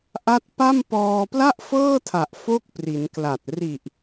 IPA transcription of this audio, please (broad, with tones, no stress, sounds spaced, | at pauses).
ʔ a˦˥ t̚ p a˥˩ m p ɔː˧ p l a˥˩ ʔ f ɤː˥˩ tʰ a˨˩ ʔ f o˥˩ k̚ p r i˩˦ n k l a˨˩ t̚ r i˨˩ ʔ